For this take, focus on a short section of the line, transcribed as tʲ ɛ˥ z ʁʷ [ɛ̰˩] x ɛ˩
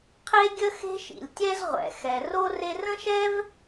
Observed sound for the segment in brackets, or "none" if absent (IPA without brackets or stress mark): ɛ̰˩